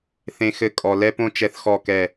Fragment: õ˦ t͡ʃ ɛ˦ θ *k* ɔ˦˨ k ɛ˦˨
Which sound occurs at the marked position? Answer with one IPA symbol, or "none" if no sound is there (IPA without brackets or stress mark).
x